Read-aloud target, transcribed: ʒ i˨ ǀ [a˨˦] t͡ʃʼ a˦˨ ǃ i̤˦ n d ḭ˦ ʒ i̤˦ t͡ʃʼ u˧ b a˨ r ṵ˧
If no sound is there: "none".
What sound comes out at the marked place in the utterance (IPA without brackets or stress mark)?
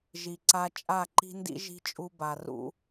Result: a˧